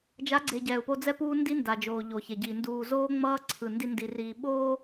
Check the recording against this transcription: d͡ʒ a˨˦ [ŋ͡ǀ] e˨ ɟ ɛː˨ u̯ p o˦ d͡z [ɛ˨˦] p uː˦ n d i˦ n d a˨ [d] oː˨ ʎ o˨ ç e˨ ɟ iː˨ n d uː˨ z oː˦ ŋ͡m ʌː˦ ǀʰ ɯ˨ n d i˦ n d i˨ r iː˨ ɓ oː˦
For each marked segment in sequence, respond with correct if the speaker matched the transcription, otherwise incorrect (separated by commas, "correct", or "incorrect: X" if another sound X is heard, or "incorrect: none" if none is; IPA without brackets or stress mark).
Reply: incorrect: ɡ͡ǀ, incorrect: ɛ˦, incorrect: d͡ʒ